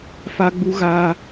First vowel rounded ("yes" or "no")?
no